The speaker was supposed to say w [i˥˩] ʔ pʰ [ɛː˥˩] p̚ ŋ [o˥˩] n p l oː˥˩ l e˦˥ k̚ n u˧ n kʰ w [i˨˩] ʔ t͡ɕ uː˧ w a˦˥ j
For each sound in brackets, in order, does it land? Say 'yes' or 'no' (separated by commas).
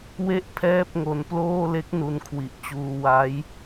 no, yes, no, yes